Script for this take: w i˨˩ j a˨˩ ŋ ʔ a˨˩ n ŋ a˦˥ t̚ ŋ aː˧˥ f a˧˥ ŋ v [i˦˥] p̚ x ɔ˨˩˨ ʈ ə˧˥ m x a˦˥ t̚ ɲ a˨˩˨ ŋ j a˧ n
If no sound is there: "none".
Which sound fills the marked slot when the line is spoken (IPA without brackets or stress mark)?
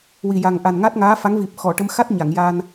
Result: i˨˩